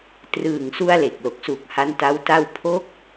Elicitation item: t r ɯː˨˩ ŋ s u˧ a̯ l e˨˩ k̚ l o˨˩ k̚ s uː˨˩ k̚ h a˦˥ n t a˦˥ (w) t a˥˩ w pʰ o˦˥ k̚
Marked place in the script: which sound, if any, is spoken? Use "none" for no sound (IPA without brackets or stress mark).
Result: w